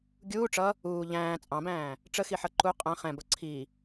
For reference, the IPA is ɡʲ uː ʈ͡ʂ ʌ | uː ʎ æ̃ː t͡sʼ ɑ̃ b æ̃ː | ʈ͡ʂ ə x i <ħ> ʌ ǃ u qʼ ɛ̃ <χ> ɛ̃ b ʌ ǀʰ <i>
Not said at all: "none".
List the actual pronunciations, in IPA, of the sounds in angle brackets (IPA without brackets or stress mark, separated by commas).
ħ, χ, i